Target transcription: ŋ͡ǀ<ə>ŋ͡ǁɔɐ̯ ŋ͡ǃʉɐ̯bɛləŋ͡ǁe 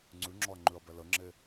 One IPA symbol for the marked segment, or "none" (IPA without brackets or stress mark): ʉ